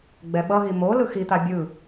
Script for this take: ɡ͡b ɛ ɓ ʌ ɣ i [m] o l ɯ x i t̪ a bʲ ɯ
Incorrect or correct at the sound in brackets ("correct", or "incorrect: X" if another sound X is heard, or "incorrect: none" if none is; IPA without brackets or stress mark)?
correct